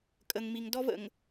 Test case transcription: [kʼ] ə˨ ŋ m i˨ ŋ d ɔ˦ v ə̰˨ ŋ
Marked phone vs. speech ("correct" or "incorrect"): correct